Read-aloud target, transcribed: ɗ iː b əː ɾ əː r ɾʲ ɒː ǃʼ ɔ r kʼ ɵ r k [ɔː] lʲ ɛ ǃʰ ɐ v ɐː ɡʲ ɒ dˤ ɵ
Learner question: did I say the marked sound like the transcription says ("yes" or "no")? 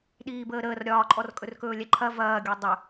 no